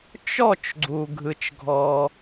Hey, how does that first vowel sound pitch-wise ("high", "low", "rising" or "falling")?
falling